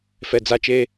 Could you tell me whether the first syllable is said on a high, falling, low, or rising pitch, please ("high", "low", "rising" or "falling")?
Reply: low